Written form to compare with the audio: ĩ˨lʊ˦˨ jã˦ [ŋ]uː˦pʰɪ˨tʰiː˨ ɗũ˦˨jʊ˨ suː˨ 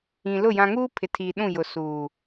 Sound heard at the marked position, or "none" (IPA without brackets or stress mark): ŋ